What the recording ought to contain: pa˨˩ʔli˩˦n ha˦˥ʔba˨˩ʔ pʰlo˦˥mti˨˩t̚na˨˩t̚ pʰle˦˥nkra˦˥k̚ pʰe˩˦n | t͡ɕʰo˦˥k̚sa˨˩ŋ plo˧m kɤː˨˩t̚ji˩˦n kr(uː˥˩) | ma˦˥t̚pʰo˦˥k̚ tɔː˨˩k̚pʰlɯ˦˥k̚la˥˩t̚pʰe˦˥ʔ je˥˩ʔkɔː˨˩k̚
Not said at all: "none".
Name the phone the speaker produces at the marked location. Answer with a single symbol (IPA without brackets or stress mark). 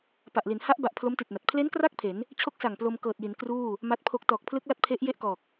uː˥˩